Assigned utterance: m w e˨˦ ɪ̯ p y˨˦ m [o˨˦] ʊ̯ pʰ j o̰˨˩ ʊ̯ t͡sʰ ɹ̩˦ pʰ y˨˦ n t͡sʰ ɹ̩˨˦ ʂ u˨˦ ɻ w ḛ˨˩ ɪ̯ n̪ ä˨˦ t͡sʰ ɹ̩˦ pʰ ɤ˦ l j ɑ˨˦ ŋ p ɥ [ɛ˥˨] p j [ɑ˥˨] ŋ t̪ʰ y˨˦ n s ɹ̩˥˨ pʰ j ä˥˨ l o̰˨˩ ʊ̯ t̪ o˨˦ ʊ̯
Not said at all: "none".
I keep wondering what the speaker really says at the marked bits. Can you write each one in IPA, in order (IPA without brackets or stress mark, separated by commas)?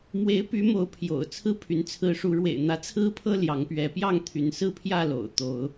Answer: o˨˦, ɛ˨˦, ɑ˥˨